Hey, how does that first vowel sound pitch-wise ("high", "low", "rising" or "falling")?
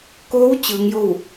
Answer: rising